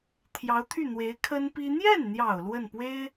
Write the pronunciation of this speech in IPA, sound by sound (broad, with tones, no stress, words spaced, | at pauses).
t̪ʰjɑ˧˥ʊ̯t̪ʰy˥˩n̪we˧˥ɪ̯ kʰə˥npi˥ n̪jɛ˥˩nn̪jɑ˨˩ʊ̯ lwə˥˩npwe˥ɪ̯